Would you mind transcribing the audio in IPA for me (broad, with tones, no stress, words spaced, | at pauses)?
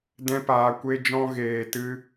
dɛ̃˧paː˨ kʷe˧d͡ʒɔ̃˧ɣeː˨tɨ˧